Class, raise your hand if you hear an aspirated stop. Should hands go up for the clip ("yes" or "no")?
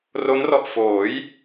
no